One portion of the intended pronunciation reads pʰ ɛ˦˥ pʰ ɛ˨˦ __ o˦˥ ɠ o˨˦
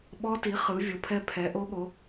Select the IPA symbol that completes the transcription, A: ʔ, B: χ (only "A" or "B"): A